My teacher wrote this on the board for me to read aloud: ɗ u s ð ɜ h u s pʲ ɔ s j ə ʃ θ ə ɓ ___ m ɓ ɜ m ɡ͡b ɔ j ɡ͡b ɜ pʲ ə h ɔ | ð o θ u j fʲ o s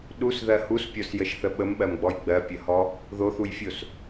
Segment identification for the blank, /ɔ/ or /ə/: ə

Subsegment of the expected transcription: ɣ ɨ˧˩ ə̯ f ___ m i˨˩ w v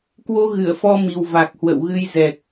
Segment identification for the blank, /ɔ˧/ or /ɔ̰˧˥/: ɔ˧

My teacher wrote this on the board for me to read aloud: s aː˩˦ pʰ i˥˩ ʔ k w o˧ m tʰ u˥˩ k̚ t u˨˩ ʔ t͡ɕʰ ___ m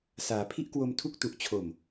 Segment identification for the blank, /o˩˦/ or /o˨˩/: o˨˩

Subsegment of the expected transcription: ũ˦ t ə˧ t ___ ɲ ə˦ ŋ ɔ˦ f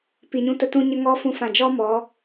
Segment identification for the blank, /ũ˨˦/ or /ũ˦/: ũ˦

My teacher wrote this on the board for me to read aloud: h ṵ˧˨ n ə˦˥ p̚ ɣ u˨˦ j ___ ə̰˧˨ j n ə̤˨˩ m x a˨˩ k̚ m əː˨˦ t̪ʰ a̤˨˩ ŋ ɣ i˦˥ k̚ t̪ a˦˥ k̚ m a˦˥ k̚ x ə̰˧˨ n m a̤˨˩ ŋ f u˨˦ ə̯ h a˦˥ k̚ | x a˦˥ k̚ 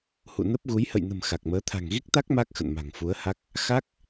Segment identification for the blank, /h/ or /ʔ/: h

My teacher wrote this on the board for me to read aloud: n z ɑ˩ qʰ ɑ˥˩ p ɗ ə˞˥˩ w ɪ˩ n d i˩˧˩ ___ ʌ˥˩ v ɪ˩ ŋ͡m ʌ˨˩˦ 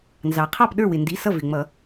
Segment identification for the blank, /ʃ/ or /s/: s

